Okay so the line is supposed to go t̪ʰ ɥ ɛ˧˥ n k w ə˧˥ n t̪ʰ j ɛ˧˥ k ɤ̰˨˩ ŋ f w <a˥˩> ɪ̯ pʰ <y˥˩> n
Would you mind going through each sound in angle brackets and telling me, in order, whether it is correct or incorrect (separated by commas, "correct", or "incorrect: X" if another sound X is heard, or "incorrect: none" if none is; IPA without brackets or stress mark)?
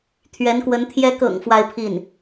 incorrect: a˥, incorrect: i˥˩